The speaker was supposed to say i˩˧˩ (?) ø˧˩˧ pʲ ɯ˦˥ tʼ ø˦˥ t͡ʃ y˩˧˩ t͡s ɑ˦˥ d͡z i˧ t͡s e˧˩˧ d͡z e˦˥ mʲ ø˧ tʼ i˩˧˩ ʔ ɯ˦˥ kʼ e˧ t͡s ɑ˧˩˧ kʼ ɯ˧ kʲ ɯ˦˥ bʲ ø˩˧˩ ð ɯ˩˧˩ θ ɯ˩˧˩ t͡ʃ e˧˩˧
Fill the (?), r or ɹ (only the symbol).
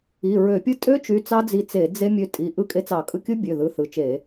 ɹ